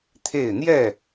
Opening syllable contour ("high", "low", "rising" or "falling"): falling